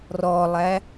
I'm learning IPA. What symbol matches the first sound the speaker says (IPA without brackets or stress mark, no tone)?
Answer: r